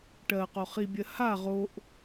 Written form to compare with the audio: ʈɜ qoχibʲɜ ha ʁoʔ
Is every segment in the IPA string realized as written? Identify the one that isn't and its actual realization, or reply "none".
none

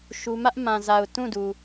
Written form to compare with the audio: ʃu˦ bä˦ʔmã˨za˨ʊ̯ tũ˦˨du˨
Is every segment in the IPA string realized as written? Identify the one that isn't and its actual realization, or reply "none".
b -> m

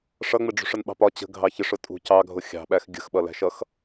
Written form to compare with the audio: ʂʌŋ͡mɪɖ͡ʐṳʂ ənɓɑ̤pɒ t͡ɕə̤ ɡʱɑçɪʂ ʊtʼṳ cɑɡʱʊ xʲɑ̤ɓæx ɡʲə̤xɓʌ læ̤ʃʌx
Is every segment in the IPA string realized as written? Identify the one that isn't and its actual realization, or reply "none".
none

